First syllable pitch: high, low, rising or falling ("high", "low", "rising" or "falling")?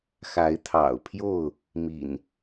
rising